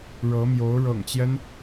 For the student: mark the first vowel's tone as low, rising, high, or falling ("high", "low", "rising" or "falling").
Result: rising